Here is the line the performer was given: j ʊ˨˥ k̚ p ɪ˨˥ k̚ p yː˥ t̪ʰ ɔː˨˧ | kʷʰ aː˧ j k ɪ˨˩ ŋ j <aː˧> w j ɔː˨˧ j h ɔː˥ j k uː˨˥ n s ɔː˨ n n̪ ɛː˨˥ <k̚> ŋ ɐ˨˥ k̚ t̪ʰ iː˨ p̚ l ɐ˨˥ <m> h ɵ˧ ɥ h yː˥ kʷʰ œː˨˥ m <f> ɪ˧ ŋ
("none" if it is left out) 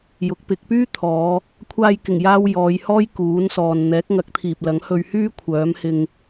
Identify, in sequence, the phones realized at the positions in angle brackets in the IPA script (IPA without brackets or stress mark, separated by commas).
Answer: aː˧, k̚, ŋ, h